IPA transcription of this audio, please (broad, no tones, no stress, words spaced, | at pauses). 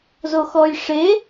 zoxɔj ʂe